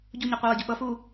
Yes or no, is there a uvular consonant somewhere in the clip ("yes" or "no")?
yes